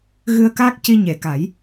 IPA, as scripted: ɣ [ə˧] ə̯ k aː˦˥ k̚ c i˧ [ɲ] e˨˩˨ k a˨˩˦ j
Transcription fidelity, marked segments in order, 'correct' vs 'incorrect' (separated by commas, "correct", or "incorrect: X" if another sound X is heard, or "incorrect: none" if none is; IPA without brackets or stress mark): incorrect: ɨ˧, correct